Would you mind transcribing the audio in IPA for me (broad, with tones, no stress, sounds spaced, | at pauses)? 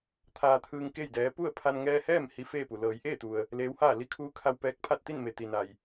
t̪ʰ aː˧ t̪ʰ ɯː˧ ŋ k e˥˨ j d ɛː˧˥ p u˥˨ ə̯ pʰ a˧ n ŋ ɛː˧ h ɛː˥˨ m h i˧˥ f eː˥˨ p u˩ l ɤː˩˧ j ʔ eː˥˨ t̪ u˩ ə̯ | l eː˧˥ w h aː˥˨ l i˧ kʰ uː˧˥ kʰ a˧ w p ɛː˧ k̚ pʰ a˥˨ t̚ t̪ i˥˨ n m e˩ t̪ i˩ n a˩ j